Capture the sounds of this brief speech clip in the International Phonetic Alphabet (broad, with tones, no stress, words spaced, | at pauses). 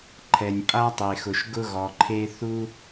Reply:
ǃʰɛ˩nʲpʼa˦tˤe˩xʊ˩ʃ ɡʊ˦ɣɔ˩ǃʰe˦ θu˦